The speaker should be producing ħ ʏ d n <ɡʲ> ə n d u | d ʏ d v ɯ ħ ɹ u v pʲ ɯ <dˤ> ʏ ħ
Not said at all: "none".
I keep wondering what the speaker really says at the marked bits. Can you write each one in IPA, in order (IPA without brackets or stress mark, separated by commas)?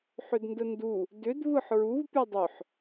d, dˤ